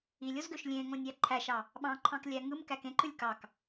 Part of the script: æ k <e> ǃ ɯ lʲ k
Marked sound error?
yes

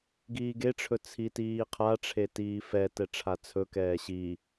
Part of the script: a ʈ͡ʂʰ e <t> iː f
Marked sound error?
no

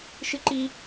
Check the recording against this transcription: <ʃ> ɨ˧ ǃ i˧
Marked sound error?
no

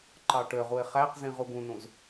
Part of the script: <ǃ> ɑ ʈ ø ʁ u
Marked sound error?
no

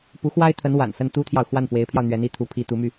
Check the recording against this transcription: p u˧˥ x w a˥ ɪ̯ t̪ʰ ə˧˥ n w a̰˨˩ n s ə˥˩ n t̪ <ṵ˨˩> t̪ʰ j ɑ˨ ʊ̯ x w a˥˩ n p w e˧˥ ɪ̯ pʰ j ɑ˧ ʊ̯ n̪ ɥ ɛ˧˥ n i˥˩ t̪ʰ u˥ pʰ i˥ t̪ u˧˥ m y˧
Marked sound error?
yes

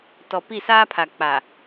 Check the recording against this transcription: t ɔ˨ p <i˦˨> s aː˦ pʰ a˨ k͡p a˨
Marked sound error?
no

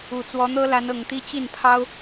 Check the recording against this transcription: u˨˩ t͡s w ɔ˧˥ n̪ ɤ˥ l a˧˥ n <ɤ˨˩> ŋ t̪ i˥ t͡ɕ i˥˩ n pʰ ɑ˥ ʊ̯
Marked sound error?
no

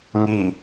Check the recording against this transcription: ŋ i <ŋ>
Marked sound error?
yes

